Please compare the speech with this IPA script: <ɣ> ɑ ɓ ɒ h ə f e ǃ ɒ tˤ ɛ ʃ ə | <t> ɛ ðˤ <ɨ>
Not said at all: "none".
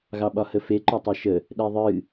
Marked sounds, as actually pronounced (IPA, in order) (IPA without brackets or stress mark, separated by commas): ɣ, ɗ, ɨ